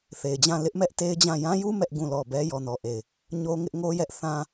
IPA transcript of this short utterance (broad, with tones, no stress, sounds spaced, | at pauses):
θ e˨ ɪ̯ d͡ʑ ã˦˨ l ɪ˦ ʔ m ɛ˦ ʔ t e˦ ɪ̯ d͡ʑ ã˦˨ j ã˦ j u˦ m ɛ˦ ʔ ɡ ũ˦˨ l ɔ˦˨ b ɛ˦ j ɔ˨ n ɔ˨ ʔ e˨ ɪ̯ | ɲ o˦ ŋ ɪ˦ ʔ ŋ o˦ j ɛ˦ ʔ θ ã˦